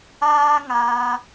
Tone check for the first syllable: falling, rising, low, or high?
high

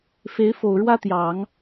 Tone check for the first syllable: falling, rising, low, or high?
rising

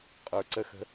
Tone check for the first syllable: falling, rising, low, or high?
low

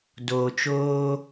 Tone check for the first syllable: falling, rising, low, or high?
low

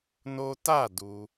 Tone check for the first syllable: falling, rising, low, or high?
high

